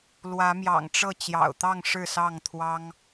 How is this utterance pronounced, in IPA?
l w ä˨˦ m j ɑ̰˨˩ ŋ ʈ͡ʂ ɤ˥˨ t͡ɕ j ɑ̰˨˩ ʊ̯ t̪ ɑ˥˨ ŋ ʂ ɻ̩˥˨ s ɑ˥˨ ŋ t̪ʰ w ɑ˦ ŋ

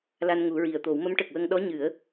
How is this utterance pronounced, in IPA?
l a˧ n ŋ u˨˩˦ ɹ i˨˩ ə̯ t̪ o˨˩˦ w m ə˧˥ m ʈ ə˨˩ k̚ w ə˧ ŋ ɗ ɔ˧˥ ɲ ɨ˨˩˦ ə̯

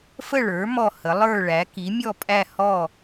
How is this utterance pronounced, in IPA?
f ə˥˨ ɭ ə˞˩˥ m ɔ˥˨ h ə˩˥ lˠ ə˞˥˨ ɭ æ˩˥ k i˩˥ mʲ ɔ˥˨ pʼ æ˥˨ h ɔ˥˨

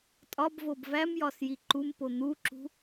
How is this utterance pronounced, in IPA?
tʼ ɒ b v o b v æ m j ɒ s j i ǃ u m p o n̪ u ǁ ṳ

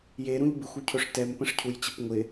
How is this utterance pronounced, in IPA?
j e ɾ ũ ʎ b ɪ xʷ u cʰ ɵ ʂ t ɛ m p ə̃ ʂ cʰ u j t͡ɕ ɪ p ŋʷ ɪ

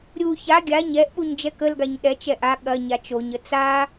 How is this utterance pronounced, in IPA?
ɾʲ u ç a ɡʲ a ɲ ɛ ʔ ɓ u ɲ d͡ʒ ɛ k ə l ɡ a ɲ ɗ ɛ t͡ʃ ɛ ʔ a ɠ ɐ ɲ a t͡ʃ o ɲ ə t͡s a

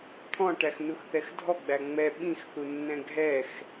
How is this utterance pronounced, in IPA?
t̪ʰ ɔ̃ ʈ æ x n u x θ ɛ x dʱ ɔ ɡ͡b æ ŋ͡m ɛ ɓ ĩ x θ u nː ɛ̃ ɡʱ ɛ x

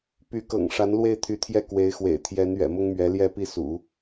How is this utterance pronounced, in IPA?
p y˧˥ k ɤ̰˨˩ ŋ ʂ a˧˥ n l w e˥˩ ɪ̯ t̪ʰ y˧˥ t̪ʰ j ɛ˥˩ k w e˧˥ ɪ̯ x w ḛ˨˩ ɪ̯ t̪ʰ j ɛ˧˥ n ɥ ɛ̰˨˩ m ʊ˥ ŋ m ɥ ɛ˧˥ l j ɛ˥˧ p i˥˩ s ṵ˨˩˦

